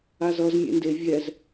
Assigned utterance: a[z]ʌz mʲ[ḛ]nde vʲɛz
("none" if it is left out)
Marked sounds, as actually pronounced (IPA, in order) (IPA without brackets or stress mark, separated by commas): z, ḛ